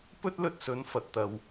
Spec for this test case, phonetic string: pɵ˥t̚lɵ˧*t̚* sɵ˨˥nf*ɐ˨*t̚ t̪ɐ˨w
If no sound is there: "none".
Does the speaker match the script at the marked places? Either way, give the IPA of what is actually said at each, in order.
t̚, ɐ˨

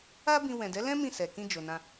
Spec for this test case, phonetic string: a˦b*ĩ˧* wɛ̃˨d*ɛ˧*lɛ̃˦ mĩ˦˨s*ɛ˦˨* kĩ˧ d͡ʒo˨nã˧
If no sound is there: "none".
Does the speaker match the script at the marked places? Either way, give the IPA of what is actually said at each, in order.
ĩ˧, ɛ˨˦, ɛ˨

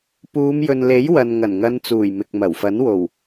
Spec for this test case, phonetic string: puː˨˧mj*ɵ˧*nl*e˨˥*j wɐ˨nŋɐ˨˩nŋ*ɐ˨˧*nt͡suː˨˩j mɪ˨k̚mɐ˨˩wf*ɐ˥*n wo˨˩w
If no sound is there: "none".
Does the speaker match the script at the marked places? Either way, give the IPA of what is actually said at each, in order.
ɵ˨, e˨˥, ɐ˨˧, ɐ˨˥

